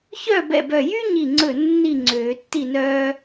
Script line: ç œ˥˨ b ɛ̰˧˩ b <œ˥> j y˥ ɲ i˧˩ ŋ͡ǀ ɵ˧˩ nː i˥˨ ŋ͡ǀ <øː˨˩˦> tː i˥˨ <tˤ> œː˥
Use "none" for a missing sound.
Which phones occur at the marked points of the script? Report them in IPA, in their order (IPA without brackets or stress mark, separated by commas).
œ˧˩, øː˨˩˦, n